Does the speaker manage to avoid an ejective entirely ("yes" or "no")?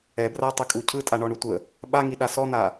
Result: no